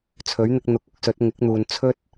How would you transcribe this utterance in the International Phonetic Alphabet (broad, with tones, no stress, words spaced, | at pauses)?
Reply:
t͡sʰɵ˨˥ɥn̪ɪ˧k̚n̪ʊ˨˥k̚ ʊ˨˥k̚sɵ˨˥t̚ ŋɪ˨˥k̚n̪uː˨n t͡sʰɵ˥t̚